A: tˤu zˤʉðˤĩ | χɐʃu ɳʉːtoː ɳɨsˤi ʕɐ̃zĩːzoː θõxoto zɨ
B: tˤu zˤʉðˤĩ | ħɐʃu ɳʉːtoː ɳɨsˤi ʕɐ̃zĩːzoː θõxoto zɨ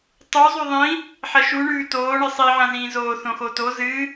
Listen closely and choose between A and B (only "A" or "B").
B